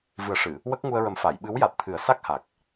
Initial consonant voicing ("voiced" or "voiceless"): voiced